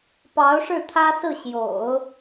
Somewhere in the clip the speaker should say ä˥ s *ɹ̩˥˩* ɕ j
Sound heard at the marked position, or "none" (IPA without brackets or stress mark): ɹ̩˥˩